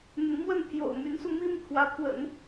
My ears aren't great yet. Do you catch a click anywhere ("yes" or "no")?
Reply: no